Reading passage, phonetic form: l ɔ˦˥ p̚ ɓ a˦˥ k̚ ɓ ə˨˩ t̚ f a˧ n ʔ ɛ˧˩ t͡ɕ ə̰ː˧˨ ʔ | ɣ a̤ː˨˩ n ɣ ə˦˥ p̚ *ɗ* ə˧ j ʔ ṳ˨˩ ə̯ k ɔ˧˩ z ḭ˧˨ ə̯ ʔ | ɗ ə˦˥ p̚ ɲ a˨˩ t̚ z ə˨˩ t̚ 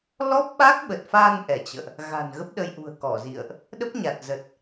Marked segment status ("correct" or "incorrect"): correct